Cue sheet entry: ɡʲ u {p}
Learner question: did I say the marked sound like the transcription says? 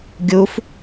no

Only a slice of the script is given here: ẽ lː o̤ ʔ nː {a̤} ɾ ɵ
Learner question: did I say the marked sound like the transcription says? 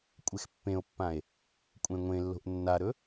no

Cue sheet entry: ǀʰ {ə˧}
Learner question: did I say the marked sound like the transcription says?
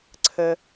no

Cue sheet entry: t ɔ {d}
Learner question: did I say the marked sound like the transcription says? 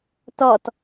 no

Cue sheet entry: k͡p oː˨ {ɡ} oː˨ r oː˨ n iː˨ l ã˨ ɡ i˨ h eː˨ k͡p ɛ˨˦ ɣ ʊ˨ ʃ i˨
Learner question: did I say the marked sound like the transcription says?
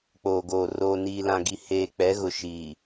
yes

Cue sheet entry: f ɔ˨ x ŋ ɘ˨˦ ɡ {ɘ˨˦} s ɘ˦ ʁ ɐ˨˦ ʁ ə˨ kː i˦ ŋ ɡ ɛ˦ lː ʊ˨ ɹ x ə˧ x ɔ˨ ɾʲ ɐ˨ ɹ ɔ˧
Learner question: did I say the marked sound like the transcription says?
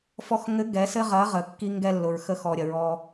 no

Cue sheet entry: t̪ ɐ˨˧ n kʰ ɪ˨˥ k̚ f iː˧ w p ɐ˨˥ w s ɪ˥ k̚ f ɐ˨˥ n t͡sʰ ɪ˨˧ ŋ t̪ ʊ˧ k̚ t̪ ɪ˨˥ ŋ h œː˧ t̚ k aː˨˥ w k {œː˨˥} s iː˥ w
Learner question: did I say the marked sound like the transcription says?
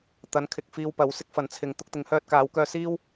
no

